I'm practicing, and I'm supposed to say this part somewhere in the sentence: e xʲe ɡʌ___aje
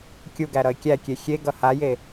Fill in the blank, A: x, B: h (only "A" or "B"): B